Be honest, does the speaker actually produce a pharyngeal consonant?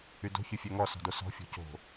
no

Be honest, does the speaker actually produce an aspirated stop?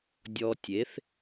no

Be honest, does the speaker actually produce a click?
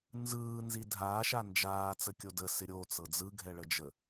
no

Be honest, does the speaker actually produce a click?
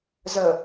no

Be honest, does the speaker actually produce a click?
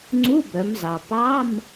yes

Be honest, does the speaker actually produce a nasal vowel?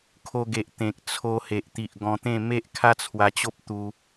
yes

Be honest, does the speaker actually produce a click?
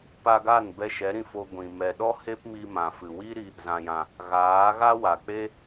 no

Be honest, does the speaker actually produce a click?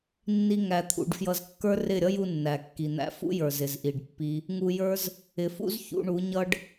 no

